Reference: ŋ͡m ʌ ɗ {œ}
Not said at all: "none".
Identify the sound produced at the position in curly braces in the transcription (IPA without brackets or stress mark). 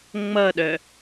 œ